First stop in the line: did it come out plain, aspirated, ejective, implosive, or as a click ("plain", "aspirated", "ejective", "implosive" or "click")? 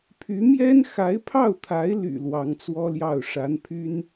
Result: aspirated